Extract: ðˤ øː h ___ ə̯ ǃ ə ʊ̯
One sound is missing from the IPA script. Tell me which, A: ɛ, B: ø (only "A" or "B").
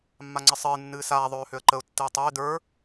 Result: B